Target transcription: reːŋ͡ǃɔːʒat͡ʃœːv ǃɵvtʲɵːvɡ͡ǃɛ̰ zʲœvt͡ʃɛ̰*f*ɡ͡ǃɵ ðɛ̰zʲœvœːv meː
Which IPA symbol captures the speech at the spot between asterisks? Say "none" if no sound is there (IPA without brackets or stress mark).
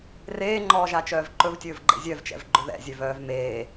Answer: v